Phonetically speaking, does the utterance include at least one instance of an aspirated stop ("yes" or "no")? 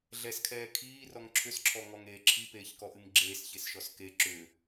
yes